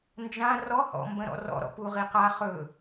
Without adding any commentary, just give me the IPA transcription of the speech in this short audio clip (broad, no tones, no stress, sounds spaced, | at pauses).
n d͡ʒ ã r ɔ h ɔ̰ m b ə̃ ɾ ɔ̰ r ɔ̰ ɾ ɔ̰ p u ʁ i q a χ ɵ